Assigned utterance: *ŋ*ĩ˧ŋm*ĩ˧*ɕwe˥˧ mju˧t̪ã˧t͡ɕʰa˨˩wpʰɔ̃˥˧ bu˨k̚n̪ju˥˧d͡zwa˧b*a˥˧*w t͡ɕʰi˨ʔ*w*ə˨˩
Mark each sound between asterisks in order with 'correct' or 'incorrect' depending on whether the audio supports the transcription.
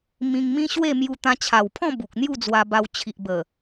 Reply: incorrect: m, incorrect: ĩ˦, incorrect: a˧, incorrect: b

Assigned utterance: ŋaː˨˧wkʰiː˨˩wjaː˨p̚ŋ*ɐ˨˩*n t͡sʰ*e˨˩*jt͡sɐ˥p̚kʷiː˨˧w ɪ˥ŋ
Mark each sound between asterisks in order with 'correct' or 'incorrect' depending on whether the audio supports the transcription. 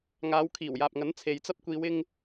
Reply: incorrect: ɐ˨˥, incorrect: e˨

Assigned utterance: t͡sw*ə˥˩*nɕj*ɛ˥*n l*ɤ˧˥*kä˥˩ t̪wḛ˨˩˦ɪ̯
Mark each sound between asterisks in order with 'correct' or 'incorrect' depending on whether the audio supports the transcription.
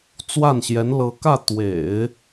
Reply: incorrect: a˥˩, incorrect: ɛ˧˥, correct

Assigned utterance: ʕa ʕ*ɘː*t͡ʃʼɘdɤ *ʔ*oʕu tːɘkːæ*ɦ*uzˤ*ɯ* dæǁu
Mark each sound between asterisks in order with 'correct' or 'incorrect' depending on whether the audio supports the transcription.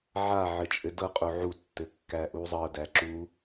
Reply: incorrect: ɘ, incorrect: qʼ, incorrect: ʔ, incorrect: ɤ

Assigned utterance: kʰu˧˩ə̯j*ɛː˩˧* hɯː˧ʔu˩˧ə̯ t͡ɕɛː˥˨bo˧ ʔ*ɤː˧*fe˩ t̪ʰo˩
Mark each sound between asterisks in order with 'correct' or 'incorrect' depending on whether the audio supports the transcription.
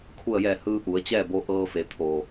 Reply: incorrect: ɛː˧˩, correct

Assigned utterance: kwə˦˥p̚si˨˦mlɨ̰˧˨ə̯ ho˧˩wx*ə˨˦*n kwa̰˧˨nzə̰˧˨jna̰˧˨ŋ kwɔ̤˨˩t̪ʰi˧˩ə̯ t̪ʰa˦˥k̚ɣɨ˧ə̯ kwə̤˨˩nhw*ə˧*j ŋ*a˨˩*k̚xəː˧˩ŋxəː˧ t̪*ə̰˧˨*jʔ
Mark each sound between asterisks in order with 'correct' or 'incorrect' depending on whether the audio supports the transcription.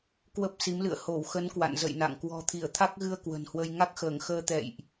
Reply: correct, correct, incorrect: a˦˥, incorrect: ɛ̰˧˨

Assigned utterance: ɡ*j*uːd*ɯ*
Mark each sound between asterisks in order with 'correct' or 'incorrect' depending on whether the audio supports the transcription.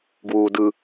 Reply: incorrect: w, correct

